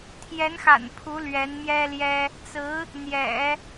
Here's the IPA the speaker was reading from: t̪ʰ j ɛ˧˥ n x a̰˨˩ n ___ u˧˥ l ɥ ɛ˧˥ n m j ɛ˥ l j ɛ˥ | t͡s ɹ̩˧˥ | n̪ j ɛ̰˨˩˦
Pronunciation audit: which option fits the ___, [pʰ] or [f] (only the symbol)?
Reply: pʰ